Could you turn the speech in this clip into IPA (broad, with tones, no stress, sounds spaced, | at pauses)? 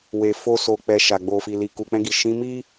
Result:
w e˨ f o˧ s o˨ k͡p ɛ˨ ʃ a˨ ɡ͡b o˨ f i˨ l i˨ k u˨ k͡p ɛ̃˧ ɡ i˨ ʃ ĩ˨˦ m i˦